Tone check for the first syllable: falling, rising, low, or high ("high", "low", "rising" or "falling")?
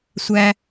high